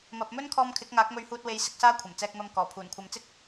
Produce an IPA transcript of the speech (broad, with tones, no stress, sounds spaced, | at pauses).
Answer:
m ɐ˨ p̚ m ɵ˥ n kʰ ɔː˧ m kʰ ɪ˨˥ k̚ ŋ aː˨˥ k̚ m ɵ˧ ɥ h uː˧ t̚ w e˨˧ j s ɪ˨˥ k̚ s aː˥ kʷʰ ɐ˨˩ m t͡s ɛː˧ k̚ m ɐ˧ m k ɔː˨˩ pʰ uː˨˩ n kʷʰ ɐ˨ m t͡s ɪ˥ k̚